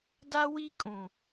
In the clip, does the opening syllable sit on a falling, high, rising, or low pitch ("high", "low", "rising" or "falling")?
high